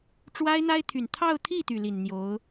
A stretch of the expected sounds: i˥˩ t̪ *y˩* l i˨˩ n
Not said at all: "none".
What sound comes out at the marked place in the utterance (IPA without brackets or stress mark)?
y˩